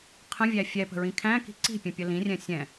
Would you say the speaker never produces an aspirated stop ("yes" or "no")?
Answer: no